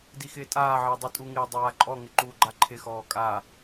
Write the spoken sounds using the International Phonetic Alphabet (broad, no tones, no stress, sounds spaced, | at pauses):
d i x ɪː tʼ aː ʕ ɪː dˤ u tʼ u ŋ ɪː dˤ aː ǃʼ ɔ ŋ ɪ ǃ uː ɡ͡ǃ a ǃʰ ɪ x ɔː kʼ a